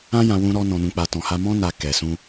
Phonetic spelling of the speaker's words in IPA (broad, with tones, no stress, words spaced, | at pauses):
ã˦jã˧ wũ˧ɾɔ˧ nɔ̃˨nũ˨k͡pa˨ tɔ̃˨ha˧ mɔ̃˧na˨ kɛ˨sũ˧